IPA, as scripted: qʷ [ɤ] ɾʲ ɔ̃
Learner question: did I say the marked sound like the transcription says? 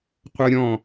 yes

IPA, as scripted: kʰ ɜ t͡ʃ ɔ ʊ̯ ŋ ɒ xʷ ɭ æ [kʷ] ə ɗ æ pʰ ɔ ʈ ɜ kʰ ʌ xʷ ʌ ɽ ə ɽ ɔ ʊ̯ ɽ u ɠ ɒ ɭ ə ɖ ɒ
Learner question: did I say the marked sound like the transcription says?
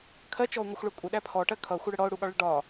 no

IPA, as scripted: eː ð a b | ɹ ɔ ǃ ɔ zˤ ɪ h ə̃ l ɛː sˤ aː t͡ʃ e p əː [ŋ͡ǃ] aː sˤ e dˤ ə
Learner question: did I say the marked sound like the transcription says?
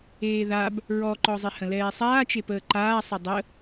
no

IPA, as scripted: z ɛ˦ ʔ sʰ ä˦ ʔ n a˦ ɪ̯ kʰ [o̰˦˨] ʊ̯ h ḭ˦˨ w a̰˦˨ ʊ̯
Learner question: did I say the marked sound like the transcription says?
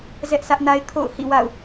yes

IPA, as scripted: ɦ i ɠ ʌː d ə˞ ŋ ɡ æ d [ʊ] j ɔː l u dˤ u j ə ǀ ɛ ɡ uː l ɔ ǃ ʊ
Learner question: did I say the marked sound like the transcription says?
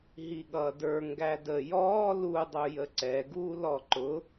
no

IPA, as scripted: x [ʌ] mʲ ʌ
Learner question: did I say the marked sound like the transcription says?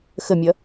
no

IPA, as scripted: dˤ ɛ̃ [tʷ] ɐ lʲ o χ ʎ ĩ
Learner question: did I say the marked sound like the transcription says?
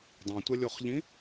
yes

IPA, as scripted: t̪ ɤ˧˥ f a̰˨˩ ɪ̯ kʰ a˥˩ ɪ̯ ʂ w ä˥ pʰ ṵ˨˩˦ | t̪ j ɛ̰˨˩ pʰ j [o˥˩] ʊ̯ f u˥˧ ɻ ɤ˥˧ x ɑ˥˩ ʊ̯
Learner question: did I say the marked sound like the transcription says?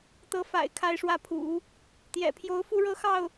no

